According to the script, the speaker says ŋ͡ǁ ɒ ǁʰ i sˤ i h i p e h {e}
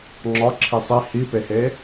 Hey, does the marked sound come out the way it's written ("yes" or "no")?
yes